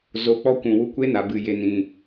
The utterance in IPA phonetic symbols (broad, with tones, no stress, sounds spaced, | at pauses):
z o˧ k͡p ɔ˦ kʷ ũ˨ w u˦ kʷ e˦ n a˨ b ɨ˨ j e˨ n ĩ˨